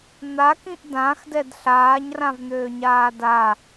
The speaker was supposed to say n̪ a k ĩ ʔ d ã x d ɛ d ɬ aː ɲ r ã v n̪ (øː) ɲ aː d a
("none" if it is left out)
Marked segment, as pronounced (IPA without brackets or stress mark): øː